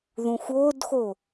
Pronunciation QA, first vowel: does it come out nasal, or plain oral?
nasal